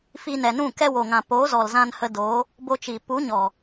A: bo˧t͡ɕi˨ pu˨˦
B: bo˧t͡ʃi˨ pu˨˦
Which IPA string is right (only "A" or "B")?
B